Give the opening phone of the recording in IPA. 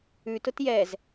ʉ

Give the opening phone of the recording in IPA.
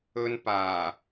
ɵ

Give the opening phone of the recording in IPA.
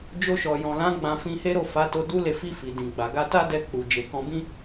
d͡ʒ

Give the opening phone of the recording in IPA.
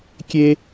kʲ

